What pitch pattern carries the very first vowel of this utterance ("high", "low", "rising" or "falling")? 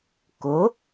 rising